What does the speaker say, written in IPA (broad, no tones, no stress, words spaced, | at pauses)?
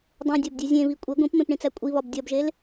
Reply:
dˤẽdʲɒbdʲu zʲẽβi kʷʼe ɡʷĩpmẽpɳĩt͡sæ kʷʼiβɒb dʲɒbʒel